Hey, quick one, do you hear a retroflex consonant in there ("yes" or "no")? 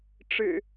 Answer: yes